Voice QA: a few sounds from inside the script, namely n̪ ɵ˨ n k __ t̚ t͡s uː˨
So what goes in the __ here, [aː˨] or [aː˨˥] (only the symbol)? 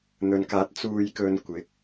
aː˨˥